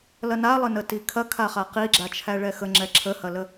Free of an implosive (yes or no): yes